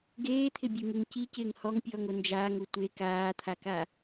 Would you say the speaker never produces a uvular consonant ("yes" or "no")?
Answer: yes